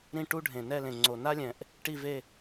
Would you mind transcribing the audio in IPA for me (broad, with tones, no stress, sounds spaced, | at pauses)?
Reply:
ɾ ĩ˥˧ ʈ u˥ ɖʱ ẽ˨˩ n ɛ˥˧ l ẽ˨˩ ŋ͡ǀ o˨˩ n a˥ lʲ ɛ̃˨˩ ʔ | ʈ i˥˧ v e˥˧